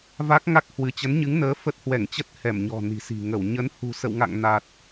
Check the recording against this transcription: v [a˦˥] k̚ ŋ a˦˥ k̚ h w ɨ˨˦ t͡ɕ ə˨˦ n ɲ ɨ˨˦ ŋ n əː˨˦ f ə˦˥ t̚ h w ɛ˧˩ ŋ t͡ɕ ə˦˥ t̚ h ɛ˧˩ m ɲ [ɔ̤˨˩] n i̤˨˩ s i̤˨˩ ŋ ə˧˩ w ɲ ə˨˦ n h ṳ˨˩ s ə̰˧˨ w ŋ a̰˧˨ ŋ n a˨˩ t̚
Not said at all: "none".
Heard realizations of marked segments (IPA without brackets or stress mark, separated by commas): a˦˥, ɔ̤˨˩